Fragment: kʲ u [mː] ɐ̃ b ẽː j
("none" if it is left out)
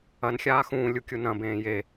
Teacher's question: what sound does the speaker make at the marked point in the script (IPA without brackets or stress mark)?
n